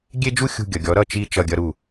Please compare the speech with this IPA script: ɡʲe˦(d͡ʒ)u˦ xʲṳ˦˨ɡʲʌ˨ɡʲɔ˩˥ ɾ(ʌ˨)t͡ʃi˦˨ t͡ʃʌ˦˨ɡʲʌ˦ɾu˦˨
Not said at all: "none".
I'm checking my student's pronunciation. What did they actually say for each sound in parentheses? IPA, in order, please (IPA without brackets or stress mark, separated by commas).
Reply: d͡ʒ, ʌ˦˨